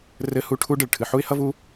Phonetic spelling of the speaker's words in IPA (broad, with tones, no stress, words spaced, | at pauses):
rɘ˧˥˧hu˧˥˧ ʈʰu˥ ɖɘ˨ɭ ʈʰɨ˨ħu˥ɪ̯hʌ˥vu˥